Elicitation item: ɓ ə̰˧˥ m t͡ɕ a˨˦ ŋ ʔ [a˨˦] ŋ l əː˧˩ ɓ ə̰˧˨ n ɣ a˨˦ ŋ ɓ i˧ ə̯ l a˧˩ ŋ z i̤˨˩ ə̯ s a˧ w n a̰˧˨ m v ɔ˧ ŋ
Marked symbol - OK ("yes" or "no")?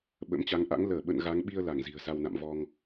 no